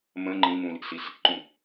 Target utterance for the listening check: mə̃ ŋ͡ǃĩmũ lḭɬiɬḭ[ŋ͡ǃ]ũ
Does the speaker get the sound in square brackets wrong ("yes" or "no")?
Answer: yes